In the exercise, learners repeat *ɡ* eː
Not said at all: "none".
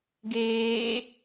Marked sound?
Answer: ɡ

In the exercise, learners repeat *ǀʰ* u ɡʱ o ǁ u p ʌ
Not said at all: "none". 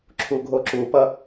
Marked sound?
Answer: ǁʰ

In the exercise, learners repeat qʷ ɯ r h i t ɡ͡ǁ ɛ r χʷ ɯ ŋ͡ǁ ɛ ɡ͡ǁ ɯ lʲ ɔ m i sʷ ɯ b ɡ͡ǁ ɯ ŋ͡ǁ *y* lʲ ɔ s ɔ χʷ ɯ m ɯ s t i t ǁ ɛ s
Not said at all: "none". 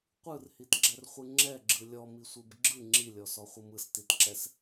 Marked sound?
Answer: i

